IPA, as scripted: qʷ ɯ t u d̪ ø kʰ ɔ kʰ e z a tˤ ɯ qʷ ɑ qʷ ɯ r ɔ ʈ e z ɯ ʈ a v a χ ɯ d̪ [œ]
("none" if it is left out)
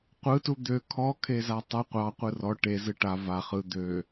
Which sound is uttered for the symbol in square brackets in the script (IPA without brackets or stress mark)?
ø